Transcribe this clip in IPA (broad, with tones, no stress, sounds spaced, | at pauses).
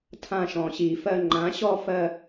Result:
tʰ ã˥˩ ʃ ɔ̃˨˩ ɕ i˨˩ f ɜ˥˧ ŋ͡ǃ ã˩˥ ɕ ɔ˥˧ f ɜ˥˧